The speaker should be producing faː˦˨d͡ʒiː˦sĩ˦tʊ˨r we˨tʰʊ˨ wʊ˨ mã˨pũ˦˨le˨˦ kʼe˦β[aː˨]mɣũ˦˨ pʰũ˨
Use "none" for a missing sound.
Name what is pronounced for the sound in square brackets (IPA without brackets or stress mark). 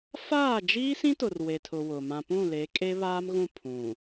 aː˦